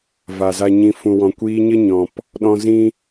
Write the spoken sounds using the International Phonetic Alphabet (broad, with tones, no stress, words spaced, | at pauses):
va˨za˧ɲĩ˧ fũ˨wɔ̃˨kʷiː˧ɲə˦ ɲɔ̃˨p | ɗɔ̃˧ zĩ˦